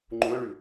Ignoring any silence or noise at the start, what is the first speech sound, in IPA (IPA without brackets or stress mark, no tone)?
ŋ͡ǃ